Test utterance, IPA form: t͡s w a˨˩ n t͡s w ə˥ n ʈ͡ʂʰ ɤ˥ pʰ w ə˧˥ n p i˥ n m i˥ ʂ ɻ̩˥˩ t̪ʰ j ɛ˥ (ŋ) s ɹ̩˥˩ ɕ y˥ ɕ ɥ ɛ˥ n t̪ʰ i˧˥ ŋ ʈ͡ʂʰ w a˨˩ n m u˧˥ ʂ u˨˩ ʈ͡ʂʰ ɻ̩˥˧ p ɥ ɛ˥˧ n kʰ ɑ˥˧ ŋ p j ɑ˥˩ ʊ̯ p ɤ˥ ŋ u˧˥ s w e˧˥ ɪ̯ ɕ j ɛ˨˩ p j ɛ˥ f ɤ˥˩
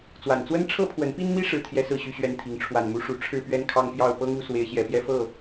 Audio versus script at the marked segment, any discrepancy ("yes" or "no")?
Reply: yes